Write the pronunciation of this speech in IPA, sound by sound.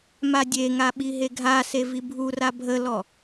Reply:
m a dʲ e ŋ a ɓ i ɦ e ɡʱ a s e v i bʱ u r a bʱ ə l ɔ

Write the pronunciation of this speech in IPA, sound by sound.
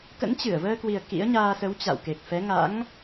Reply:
k ə̰˧˥ n t͡ɕ ɨ˧˩ ə̯ v əː˧ k w i˨˩ ə̯ k ḭ˧˥ ə̯ ɲ aː˧ s ə˨˦ w t͡ɕ a̰˧˨ w k e˨˩ k̚ f ɛ˨˦ ŋ a̰˧˥ ŋ

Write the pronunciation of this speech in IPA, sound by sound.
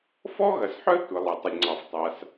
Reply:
f ɔ˥ ɣ ɐ˩ s ħ œ˥ tʷ ə˩ lˠ ɐ˩ tˤ ə˩ lʲ ŋ͡ǀ ɑ˩ f tˤ a˩ s

